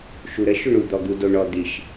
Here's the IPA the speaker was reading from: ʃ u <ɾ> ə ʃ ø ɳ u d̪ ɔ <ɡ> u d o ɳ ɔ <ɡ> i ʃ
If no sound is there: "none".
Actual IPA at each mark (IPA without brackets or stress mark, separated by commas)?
ɾ, ɡ, d̪